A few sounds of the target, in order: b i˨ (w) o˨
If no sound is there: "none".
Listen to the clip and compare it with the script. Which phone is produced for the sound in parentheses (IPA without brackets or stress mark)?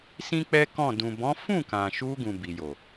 j